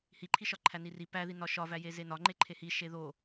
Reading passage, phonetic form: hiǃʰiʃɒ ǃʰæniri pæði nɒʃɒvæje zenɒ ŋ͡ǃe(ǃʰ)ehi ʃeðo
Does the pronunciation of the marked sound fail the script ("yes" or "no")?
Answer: no